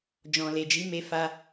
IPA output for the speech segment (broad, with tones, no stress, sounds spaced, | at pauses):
d͡ʒ ɔ̃˨ l e˨ d͡ʒ i˨˦ m e˧ f a˧